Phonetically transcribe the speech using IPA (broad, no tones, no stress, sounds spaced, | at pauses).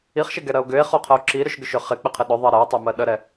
i χ ʃ ɪ ɡ ɛ ɾ ɜ o̯ ɡ ʏ e̯ χ o qʰ ə o̯ ǁ i ɾ ʏ ʃ ɡ ʏ ʃ ʏ χ ɪ k͡p ɪ qʰ ɪ ɗ ʏ ðˤ ɜ ɾ ɜ e̯ tˤ ʏ m ɜ ɗ ə ɾ ɛ